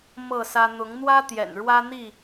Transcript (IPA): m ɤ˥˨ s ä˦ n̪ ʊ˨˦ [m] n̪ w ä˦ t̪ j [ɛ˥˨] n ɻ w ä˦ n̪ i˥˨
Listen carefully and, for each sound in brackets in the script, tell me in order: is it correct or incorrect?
incorrect: ŋ, incorrect: ɛ̰˨˩

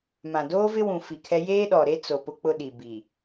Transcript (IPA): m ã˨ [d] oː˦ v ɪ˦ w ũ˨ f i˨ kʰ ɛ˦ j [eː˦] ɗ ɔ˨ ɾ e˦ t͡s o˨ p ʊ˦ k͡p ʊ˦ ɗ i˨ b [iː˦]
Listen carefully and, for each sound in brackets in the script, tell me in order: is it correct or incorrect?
correct, correct, incorrect: iː˨

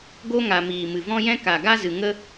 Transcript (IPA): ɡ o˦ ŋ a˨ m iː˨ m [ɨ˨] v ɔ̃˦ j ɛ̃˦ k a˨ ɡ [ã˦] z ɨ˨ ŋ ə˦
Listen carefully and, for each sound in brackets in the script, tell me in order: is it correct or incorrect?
correct, incorrect: a˦

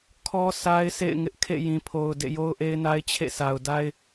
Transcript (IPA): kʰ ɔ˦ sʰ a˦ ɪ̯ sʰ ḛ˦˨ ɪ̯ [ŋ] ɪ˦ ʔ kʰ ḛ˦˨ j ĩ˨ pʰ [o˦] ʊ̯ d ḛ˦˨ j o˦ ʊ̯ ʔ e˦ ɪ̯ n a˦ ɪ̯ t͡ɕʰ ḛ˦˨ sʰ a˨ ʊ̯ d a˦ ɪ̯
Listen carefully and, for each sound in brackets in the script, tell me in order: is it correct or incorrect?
correct, incorrect: o˨

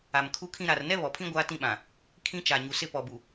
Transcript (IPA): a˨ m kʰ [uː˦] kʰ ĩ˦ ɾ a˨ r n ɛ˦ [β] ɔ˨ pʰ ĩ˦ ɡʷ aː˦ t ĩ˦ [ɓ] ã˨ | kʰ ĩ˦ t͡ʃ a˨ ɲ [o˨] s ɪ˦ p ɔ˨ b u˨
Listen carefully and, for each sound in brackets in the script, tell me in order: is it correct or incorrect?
incorrect: u˦, correct, correct, incorrect: u˨

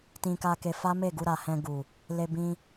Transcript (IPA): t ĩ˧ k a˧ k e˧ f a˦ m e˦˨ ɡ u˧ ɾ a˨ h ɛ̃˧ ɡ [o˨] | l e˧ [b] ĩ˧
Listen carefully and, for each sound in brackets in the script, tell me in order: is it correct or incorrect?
incorrect: u˨, correct

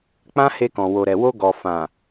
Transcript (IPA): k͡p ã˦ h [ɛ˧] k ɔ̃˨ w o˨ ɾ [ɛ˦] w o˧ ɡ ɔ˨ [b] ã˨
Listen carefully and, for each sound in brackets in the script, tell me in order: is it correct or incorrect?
incorrect: e˧, incorrect: ɛ˨, incorrect: f

